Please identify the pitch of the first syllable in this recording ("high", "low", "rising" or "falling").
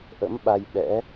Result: rising